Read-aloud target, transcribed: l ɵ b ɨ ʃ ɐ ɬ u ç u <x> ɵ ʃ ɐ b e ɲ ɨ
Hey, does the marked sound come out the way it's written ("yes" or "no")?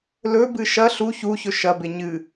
no